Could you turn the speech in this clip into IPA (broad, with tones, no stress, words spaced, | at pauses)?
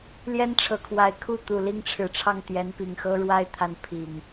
ljɛ˦nʈ͡ʂʰɤ˨˩kʰwa˨˦ɪ̯ kʰu˥˨ t̪u˨˩li˦ŋʈ͡ʂʰɻ̩˨˩ʈ͡ʂʰɑ˥˨ŋ t̪jɛ˨˦npi˨˩ŋxɤ˦ ɻwa˦ɪ̯t̪ʰa˨˦n pʰi˨˩ŋ